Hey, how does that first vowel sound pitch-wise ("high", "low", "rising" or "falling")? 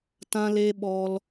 high